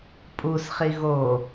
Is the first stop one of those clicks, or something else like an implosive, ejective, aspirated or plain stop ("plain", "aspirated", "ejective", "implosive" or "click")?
ejective